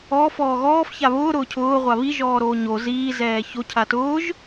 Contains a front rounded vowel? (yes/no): no